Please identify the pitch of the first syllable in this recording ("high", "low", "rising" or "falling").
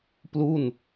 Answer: falling